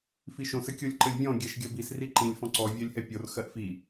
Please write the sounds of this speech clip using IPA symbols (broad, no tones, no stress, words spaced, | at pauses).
fiʃõs ɘkʲolʲǃɘlʲvʲɔ̃ ɡʲɛʃɡʲɜbis riǃĩlʲ fɔ̃ǀɔ vʲɜlʲhɛpʲor xɜʔfi